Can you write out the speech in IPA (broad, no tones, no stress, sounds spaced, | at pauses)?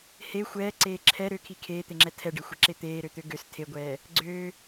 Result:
h e xʷ ɛː ǀ eː ǁʰ ɛ ɾ ø kʰ i kʰ eː t̪ e ŋ͡ǁ ɛ tʰ ɛ ɖ e xʷ ɛ ǁ e t̪ eː ɾ ø t̪ ø ɡ ø s tʰ e ɡʷ ɛː | ɡ͡ǀ øː